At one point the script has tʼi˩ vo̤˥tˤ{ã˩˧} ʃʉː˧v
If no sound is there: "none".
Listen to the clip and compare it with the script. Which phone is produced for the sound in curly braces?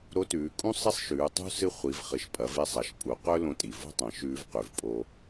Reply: ɐ̃˩˧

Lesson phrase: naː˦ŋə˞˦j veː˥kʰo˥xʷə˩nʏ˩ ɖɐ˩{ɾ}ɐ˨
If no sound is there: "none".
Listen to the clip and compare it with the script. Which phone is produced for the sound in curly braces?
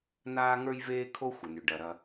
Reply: ɾ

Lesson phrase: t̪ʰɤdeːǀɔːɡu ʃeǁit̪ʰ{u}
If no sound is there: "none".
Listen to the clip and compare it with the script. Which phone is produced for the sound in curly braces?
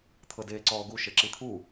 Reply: u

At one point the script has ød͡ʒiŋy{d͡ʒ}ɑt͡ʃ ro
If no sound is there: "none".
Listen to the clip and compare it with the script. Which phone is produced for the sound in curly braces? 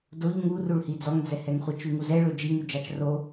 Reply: d͡ʒ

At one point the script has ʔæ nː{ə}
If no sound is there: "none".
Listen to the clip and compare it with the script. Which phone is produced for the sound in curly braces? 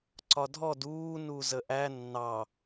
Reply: ɑ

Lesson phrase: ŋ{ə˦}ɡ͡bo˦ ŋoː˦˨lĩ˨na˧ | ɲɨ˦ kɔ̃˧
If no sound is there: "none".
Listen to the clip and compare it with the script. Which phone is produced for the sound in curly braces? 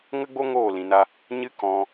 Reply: ə˦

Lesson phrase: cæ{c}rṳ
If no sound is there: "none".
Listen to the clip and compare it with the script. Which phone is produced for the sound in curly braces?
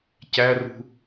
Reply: none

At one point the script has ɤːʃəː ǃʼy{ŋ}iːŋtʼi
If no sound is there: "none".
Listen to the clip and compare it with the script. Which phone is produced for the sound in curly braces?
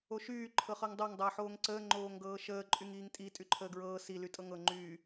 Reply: ŋ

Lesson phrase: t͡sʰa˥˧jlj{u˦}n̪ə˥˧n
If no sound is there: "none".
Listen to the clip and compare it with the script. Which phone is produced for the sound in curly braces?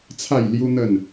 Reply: u˦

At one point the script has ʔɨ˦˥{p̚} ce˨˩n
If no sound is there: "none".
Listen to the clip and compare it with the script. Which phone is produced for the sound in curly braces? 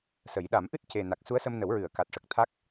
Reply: t̚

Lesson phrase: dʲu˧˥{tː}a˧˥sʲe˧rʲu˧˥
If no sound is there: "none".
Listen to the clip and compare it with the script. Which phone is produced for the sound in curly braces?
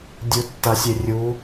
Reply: tː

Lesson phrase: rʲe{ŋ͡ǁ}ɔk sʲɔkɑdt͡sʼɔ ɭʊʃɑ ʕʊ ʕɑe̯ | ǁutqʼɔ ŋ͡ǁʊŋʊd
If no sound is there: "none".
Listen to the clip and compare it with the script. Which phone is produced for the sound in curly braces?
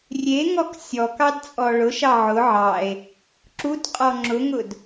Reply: ŋ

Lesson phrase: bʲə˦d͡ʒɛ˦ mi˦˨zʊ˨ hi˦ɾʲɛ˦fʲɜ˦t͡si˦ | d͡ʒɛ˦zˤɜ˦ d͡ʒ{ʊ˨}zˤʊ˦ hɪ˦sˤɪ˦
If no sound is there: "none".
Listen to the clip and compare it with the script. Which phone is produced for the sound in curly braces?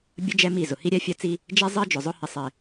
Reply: ʊ˨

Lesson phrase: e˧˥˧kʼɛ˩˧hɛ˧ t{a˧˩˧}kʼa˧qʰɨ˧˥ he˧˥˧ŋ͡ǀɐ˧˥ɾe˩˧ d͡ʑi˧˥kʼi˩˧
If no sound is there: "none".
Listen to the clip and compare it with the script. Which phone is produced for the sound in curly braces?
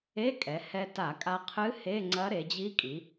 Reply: a˧˩˧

